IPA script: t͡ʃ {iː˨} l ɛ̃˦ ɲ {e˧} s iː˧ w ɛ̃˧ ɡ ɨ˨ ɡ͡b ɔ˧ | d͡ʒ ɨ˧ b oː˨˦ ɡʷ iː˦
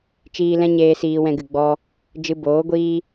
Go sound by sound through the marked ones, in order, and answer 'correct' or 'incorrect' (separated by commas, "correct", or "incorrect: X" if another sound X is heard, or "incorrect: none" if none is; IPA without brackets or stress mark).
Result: incorrect: iː˧, incorrect: eː˧